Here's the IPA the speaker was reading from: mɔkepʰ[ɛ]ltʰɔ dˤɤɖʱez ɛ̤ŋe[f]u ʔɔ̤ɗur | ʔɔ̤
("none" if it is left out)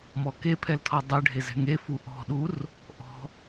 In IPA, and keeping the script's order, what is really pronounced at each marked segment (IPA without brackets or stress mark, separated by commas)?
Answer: ɛ, f